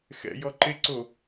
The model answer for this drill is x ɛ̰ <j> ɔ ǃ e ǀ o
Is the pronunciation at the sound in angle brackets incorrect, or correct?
correct